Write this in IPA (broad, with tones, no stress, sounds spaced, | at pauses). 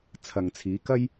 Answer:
t͡sʰ ɐ˨ ŋ t͡sʰ iː˨˧ k ɐ˥ j